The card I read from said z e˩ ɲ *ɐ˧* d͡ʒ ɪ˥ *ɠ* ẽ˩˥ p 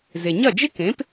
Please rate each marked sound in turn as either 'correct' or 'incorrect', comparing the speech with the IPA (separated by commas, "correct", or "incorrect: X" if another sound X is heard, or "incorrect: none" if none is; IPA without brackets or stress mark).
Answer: incorrect: ɐ˥˩, incorrect: k